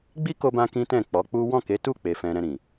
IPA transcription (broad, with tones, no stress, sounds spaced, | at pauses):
ɡ͡b i˦ k o˧ b ã˦ k ĩ˦ t ɛ̃˦˨ k͡p ɔ˨˦ k͡p u˦ w ɔ̃˦˨ k e˨˦ t u˦˨ k͡p e˧ f ɛ̃˧ ɾ ɛ̃˧ ɾ ĩ˨